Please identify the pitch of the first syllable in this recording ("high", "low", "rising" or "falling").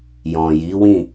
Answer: low